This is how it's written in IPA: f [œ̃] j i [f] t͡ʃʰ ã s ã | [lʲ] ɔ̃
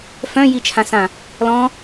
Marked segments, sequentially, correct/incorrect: correct, incorrect: none, incorrect: l

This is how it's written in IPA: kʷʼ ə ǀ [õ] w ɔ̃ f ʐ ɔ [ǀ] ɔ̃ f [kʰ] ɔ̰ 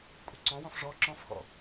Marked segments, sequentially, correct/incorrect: incorrect: ɔ̃, incorrect: ǁ, incorrect: x

